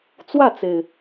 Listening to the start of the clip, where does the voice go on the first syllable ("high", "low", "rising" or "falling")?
falling